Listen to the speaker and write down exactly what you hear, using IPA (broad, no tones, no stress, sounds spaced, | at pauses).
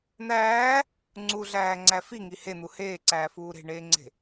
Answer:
n̪ æː | ŋ͡ǀ u ɮ æː ŋ͡ǀ æ f i ŋ i h e n̪ u h eː ǀ æː f uː ɾ e̤ ɳ eː ŋ͡ǀ e̤